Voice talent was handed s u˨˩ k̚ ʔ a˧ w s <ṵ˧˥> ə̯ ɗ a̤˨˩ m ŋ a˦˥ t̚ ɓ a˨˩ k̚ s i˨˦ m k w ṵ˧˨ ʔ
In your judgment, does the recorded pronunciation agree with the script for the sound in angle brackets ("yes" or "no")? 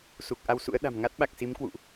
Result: yes